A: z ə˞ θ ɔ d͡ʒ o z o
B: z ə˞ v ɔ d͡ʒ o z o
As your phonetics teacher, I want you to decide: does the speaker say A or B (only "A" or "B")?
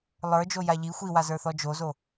A